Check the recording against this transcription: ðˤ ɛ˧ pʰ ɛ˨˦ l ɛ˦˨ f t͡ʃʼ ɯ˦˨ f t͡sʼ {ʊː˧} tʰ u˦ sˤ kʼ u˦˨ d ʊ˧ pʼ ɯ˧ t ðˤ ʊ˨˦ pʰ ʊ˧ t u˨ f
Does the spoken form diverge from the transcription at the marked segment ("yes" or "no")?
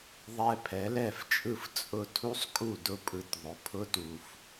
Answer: yes